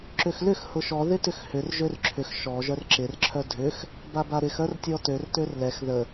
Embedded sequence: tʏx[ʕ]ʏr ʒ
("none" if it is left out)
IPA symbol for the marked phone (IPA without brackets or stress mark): h